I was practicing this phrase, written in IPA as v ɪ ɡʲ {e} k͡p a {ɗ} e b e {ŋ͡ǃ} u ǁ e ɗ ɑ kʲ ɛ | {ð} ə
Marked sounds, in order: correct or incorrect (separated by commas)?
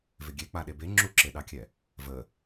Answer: correct, correct, incorrect, incorrect